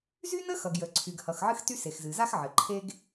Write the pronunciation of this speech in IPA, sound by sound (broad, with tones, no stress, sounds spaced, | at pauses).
z y˥ n ə˥ x ʌ˩ ɡ j ə˩ ǀʰ y˩ ɡ h ʌ˩ x ʕ ɨ˥ x t y˥ s e˩ x z ɨ˩ z a˥ x ʕ ɘ˩ ǃʰ e˥ ɡ